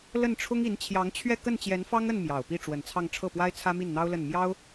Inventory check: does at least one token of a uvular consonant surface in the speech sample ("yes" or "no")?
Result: no